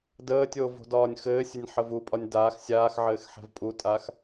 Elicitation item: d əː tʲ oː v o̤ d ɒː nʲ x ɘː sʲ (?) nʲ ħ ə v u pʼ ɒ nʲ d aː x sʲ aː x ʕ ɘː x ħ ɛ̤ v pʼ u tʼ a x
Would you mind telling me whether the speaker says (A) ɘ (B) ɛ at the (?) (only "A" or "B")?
A